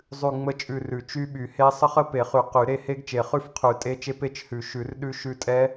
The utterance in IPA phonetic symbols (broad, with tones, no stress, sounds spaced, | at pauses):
zˤ ʉ˦˨ ŋ͡m ə˦˥ t͡ʃʼ ʉ˦˨ r ʉ˨˩˦ t͡ʃ y˦˥ ɓ y˨˩˦ h e˦˥ sˤ ə˦˥ χ ə˦˥ p e˨˩˦ χ y˨˩˦ q y˨˩˦ ɾ e˦˨ h e˦˥ ɡ t͡ʃ e˨˩˦ χ ʉ˦˨ f qʰ ʉ˨˩˦ tʼ e˦˥ t͡ʃ e˦˥ p e˦˨ t͡ʃ h ʉ˨˩˦ ʃ ʉ˨˩˦ r ɗ ʉ˦˥ ʃ ʉ˦˨ tʼ ɛ˦˥